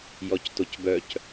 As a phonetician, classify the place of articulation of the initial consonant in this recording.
palatal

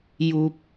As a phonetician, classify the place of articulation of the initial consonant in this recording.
palatal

